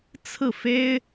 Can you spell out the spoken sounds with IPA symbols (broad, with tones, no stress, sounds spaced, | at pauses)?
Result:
t͡sʰ ɹ̩˥˩ f e˥ ɪ̯